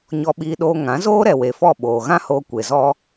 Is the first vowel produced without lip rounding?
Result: no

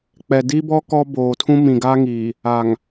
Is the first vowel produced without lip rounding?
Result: yes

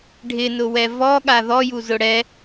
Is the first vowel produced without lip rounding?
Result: yes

